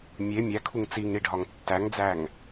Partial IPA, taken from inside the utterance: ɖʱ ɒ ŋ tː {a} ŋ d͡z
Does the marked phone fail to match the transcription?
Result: yes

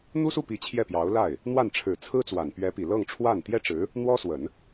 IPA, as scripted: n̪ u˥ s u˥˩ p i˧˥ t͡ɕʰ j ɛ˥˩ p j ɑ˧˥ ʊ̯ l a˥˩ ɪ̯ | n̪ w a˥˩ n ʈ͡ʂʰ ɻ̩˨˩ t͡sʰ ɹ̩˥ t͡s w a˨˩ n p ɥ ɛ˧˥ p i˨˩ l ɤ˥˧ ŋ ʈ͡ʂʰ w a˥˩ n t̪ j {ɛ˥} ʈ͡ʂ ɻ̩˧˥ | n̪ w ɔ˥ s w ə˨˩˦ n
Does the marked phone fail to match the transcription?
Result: no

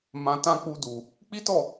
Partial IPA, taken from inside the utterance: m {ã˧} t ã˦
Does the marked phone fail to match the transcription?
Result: no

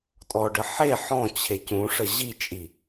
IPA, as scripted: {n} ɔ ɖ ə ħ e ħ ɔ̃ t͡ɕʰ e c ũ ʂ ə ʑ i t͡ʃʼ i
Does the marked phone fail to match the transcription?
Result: yes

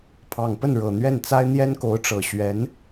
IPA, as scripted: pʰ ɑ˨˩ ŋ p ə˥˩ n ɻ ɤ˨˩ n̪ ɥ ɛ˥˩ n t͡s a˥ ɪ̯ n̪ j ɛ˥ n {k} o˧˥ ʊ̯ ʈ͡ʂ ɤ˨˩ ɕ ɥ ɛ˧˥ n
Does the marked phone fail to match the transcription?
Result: no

